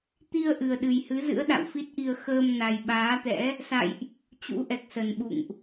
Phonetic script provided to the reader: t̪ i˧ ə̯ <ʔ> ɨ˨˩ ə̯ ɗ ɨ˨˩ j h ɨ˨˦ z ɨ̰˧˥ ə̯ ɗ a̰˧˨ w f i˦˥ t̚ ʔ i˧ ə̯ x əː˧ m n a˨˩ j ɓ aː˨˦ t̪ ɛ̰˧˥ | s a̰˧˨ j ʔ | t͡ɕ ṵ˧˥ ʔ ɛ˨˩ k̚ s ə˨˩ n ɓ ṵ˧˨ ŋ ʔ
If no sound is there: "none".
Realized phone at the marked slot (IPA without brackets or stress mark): ʔ